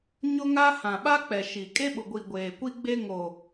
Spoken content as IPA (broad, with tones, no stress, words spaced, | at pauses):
ɲʊ˦ŋa˦ hã˨ɓa˦k͡pɛ˨ ʃi˨ kʼe˦ɓʊ˨ɡʷi˨ ɡʷeː˨kʷi˦ɡ͡be˦ ŋo˨